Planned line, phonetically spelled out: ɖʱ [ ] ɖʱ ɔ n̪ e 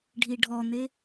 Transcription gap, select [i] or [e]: i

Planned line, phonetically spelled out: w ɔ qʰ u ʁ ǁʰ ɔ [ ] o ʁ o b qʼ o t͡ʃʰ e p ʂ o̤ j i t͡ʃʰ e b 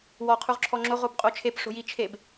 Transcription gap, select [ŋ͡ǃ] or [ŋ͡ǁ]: ŋ͡ǁ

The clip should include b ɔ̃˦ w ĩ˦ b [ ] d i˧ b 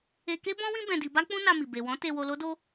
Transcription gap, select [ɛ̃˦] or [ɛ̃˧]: ɛ̃˧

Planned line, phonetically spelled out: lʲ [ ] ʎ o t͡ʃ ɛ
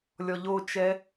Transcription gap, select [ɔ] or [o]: ɔ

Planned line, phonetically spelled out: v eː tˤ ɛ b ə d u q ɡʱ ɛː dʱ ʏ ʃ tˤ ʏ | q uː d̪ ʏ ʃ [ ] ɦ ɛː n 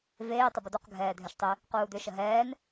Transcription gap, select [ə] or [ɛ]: ə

